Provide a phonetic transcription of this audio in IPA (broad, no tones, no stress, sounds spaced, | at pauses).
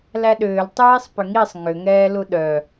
l æ ɗ ʏː l tˤ eː sˤ p ʏ ŋ i sˤ ŋ ʏ ŋ ɛː l u ɗ œ